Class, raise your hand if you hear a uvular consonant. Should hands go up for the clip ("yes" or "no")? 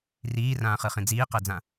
yes